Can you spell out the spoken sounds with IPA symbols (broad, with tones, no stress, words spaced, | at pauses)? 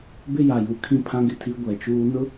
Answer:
bɪ˦ja˨ju˨ kʰĩ˦pʰã˦ɡɪ˨tʰi˦ ɡʷɛ˨t͡ʃuː˦ nʊ˦